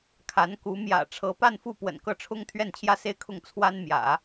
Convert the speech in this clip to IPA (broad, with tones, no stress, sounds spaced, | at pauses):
kʰ a˧˥ n k u˧˥ m j ä̰˨˩ ʈ͡ʂʰ ɤ˧˥ p a˥˧ n f u˥˩ p w ə̰˨˩ n k ɤ˥˩ ʈ͡ʂʰ ʊ˥ ŋ t̪ʰ ɥ ɛ˥˧ n t͡ɕʰ j ä˥˧ s e˥˧ ɪ̯ kʰ ʊ˥˩ ŋ t͡sʰ w a˥ n m j ä̰˨˩˦